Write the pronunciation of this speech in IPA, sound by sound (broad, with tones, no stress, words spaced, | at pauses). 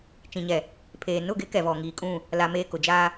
t͡ʃĩ˨ɲɛ˨ | pʰeː˨nʊ˦˨ɡɪ˦ kɛ˨vɔ˨ŋiː˨kʼũ˦˨ | la˦meː˦ kʊ˨d͡ʒaː˦